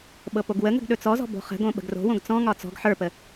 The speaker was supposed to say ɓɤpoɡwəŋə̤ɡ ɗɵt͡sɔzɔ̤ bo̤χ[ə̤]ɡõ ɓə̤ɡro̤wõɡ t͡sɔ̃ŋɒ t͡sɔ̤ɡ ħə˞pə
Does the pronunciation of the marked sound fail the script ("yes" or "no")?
no